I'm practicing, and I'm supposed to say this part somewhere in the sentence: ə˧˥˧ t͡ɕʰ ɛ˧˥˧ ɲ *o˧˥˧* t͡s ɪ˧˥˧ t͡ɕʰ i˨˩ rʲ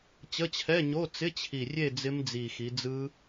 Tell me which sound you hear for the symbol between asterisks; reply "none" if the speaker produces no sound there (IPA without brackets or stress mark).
o˧˥˧